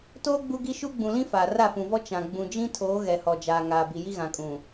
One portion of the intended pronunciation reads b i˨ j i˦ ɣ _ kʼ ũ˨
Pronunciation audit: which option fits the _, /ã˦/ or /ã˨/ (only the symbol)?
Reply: ã˨